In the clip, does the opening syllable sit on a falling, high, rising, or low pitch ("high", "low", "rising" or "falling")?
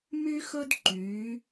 high